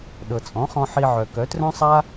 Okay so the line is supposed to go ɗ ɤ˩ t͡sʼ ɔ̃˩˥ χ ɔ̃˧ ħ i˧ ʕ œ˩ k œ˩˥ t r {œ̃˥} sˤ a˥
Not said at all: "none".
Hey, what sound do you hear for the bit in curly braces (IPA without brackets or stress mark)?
œ̃˥